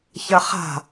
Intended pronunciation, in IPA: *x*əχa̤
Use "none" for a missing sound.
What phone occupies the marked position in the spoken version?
ç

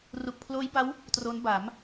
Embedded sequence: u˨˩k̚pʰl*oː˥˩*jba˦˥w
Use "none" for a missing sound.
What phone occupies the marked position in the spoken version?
oː˦˥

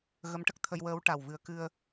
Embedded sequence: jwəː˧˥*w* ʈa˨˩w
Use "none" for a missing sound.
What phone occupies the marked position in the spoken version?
w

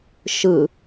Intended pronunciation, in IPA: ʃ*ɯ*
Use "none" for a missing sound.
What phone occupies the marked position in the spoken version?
ɯ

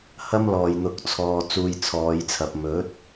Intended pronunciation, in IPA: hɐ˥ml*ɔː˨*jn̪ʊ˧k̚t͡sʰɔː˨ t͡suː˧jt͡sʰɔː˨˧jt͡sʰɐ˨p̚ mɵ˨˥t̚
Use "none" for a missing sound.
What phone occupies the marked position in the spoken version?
ɔː˨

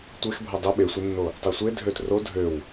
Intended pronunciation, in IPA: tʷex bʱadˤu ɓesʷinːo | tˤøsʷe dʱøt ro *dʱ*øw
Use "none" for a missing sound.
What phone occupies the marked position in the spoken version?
dʱ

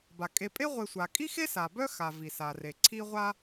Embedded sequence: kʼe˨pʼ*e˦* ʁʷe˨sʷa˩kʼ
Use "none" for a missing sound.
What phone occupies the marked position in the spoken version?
e˦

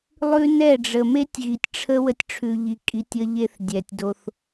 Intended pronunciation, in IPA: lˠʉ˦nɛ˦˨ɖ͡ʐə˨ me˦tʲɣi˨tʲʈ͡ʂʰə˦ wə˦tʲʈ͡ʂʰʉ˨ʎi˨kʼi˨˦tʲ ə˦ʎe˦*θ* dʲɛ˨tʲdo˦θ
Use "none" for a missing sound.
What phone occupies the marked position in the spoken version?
θ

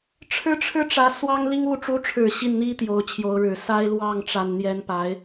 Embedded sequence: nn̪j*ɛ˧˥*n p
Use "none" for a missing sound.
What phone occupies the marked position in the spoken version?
ɛ˧˥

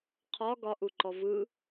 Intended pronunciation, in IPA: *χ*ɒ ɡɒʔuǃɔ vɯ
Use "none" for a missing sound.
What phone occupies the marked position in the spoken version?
qʰ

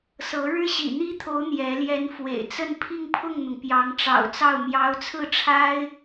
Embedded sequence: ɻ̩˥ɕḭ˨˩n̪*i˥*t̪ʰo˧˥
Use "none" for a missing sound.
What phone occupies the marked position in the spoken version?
i˥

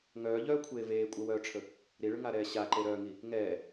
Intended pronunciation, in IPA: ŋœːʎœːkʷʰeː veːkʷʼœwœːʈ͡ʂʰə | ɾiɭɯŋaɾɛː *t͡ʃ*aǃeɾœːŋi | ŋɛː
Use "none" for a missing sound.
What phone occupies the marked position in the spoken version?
ɕ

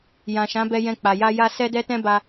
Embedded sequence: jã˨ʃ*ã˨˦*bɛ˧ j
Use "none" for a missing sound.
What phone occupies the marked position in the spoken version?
ã˨˦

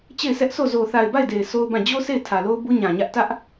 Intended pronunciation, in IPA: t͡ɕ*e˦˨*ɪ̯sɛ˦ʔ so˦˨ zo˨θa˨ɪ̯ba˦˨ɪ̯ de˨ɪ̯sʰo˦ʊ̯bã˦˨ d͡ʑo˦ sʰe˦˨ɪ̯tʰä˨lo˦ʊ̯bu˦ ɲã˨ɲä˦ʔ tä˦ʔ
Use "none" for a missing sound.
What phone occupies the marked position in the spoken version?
e˦˨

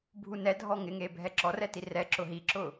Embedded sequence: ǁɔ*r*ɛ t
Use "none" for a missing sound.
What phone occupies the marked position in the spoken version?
r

